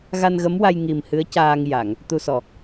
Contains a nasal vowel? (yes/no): no